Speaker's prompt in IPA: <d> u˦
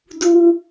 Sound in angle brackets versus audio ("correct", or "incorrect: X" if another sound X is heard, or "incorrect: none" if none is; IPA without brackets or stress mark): correct